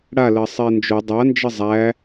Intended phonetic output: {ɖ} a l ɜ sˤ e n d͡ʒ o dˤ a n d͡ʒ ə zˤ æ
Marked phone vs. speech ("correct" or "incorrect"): incorrect